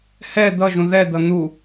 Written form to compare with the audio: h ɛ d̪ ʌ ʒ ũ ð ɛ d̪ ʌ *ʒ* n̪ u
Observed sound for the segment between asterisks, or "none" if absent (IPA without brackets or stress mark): none